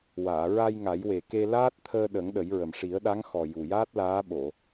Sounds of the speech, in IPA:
waː˨˩˨ɹa˧j ŋa˨˩˦jwe˨˩ke˧ laː˦˥t̚t̪ʰəː˧ɗə˨˩˦ŋ ɗə˨˩˦jɹə˨˩m ʂi˨˩˦ə̯ɗa˧˥ŋxɔ˨˩ ju˨˩jaː˦˥t̚laː˧˥ ɓo˨˩˨

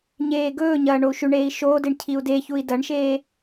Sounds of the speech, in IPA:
ɲeːɡɵːɲɐː ɳou̯ʃʉɳeːi̯ ʃoːdeɳ cʰiu̯deçui̯ dɐɳʃeː

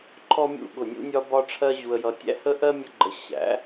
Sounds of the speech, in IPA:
ǃʰɔ˥mʲṵ˥˩ɠʊ˥˩nʲṵ˥ nʲɒ˥bɒ˥ʈ͡ʂʰɜ˥ ʑu˧ə̯jʌ˧tʲæ̰˥ hə˥ʔɜ˥ mʲə˥ɡ͡ǃə˧ ɕæ̰˩˥

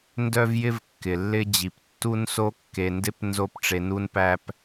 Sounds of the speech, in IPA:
ndœ˥vjɪ˥v kːɪ˩lːɪ˥d͡ʑi˩p tːu˥nso˥kːe˩ndɪ˥p nzo˥pʈ͡ʂe˩nu˥npæ˥p

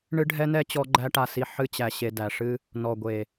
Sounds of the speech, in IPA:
ɳɨ˦ɖʱɛ˦nɛ˦ t͡ɕɔ˦ɡ͡ǃæ˦ʈa˧si˧ ħɨ˦t͡ɕæ˧ɕe˧dæ˨ ʂɨ˧ | nɔ˨ɡʷe˨

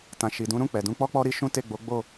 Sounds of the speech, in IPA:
tã˨ʃi˨ dũ˨˦ɾũ˦˨k͡pɛ˨ dũ˧k͡pɔ˦k͡pɔ˦ ɾi˦ʃũ˦ te˦˨ɡ͡bo˨˦ɡ͡bo˦˨

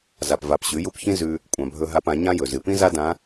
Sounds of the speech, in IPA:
za˩pva˩˧p ɕʉ˩˧ju˧p çĩ˥ zʉ˧ | kʷʼã˩bʱɵ˧ɦa˧p ã˩˧ɲã˥jɵ˩ zɨ˩pĩ˥za˥ dã˧˥

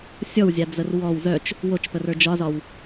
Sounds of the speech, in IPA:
sʲɔwzʲad͡zər wɔw zœt͡ʃ | wot͡ʃpərə˞ d͡ʒɒzɒw

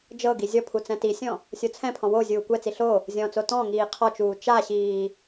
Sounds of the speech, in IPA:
d͡ʒɤɡi zʲɔpʰu t͡sɛ̃tisʲɔ̃ | sʲot͡sʰɛ̃pʰɔ̃ wo zʲuːkʷɛt͡si ɬo | zʲɔ̃t͡so tɔ̃ ŋiːqʰɔt͡ʃuː t͡ʃaɕiː

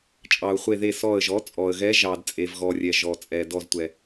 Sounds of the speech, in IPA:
t͡ʃʼɑ˩ʊ̯χʷe˧˩ðe˧˩ sɔ˧˩ə̯ʒɔ˩˥t͡sʼɔ˩ə̯ɣɛ˧˥ ʒɑ˩dt͡sʼe˩vɣɔ˩rʲɛ˩ ʒɔ˩t͡sʼɛ˩ dɔ˧˩ztʷɛ˩

